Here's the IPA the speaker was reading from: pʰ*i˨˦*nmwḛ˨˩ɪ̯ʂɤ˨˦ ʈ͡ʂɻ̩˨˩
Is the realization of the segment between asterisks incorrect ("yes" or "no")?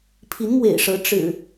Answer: no